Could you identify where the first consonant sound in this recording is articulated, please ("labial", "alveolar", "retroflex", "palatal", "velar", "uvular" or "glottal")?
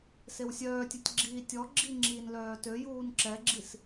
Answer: alveolar